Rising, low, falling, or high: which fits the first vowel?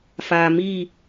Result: low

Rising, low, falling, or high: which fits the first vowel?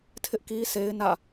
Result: high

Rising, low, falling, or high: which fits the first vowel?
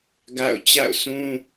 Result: falling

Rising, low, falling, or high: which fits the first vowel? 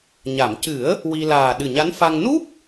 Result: low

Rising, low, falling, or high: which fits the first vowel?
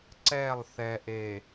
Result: falling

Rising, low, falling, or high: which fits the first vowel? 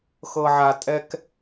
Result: low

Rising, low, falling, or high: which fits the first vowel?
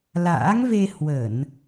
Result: rising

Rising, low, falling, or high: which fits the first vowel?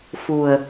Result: low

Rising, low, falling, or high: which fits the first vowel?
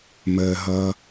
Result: low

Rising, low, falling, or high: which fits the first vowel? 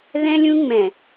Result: high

